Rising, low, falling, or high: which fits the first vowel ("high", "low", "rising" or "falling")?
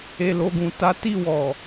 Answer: low